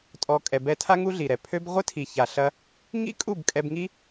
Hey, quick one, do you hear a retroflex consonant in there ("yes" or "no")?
no